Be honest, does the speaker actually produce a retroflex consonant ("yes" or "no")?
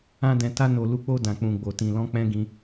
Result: no